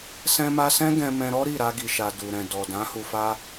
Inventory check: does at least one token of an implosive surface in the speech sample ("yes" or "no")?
no